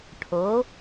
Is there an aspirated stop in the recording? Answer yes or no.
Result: yes